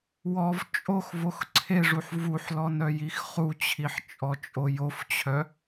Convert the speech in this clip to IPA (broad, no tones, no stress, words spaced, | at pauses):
wɔv t͡ʃʼox voxǀʰeʐuħ vuħlɔn œjixχut͡ɕʰiħ t͡ʃʼɔt͡ʃʼojoft͡ɕʰœ